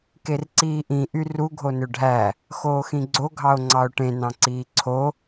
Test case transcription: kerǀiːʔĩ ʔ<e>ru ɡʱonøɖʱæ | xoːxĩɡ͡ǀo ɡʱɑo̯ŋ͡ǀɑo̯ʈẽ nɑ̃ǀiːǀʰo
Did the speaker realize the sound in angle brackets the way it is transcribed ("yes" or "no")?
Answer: no